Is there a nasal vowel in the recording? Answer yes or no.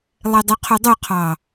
no